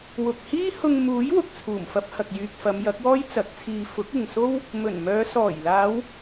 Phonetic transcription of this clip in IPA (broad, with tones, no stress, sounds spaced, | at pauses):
w ʊ˨ k̚ h iː˥ h ʊ˧ ŋ m uː˨˥ j w ʊ˨ k̚ t͡sʰ uː˨˩ m f ɐ˧ p̚ h ɐ˨ k̚ j yː˨ k̚ f ɐ˨˧ m j ɐ˨˥ k̚ w ɔː˥ j t͡s ɐ˨˥ k̚ t͡sʰ iː˧ f ʊ˨˥ k̚ ɪ˨ ŋ s o˥ w | m ɵ˨˩ n m œː˨˧ s ɔː˨˩ j l aː˨˧ w